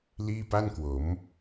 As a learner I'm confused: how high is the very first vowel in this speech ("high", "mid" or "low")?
high